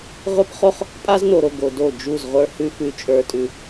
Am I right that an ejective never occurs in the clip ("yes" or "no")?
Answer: no